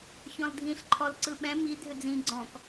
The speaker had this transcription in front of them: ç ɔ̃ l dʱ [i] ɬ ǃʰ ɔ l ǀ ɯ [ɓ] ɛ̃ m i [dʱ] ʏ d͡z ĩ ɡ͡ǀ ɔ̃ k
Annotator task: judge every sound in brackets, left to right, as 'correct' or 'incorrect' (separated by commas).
incorrect, correct, correct